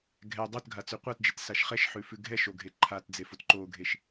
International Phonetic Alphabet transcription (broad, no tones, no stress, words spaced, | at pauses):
ɡʱɛ dˤotɡʱa t͡sʉqʷatd͡ʒet saʃχɛʃħʉ fʉɡʱɛʃoɡʱe ǃʰatd͡zefot ǃoɡʱeʃ